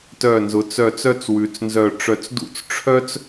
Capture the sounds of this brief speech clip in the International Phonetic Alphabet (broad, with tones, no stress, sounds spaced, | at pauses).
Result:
t œ˧˩ n z ʊ˩˧ t͡s œ˧˩ t͡s œ˥ t͡s w ʉ˩˧ t͡s n z œ˧˩ ʈ͡ʂ œ˧˩ t͡s d ṵ˥˧ t͡s ʈ͡ʂʰ œ˥ t͡s